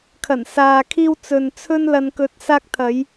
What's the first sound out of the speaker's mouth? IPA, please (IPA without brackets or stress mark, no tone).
kʰ